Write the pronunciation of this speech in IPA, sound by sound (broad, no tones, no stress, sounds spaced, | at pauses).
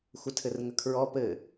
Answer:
xʷ ə tʰ ɘ r ŋ ə kʰ ɹ ɔ p ɘ